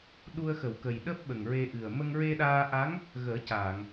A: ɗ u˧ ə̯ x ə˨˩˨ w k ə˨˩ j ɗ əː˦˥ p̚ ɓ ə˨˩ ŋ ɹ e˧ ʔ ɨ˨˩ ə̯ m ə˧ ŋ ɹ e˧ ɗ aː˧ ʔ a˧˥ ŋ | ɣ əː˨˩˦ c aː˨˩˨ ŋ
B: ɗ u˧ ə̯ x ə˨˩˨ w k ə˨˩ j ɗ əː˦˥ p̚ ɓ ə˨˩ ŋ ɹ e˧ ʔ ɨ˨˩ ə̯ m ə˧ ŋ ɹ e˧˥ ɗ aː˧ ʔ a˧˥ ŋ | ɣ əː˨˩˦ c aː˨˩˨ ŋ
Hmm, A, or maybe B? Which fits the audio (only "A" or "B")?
A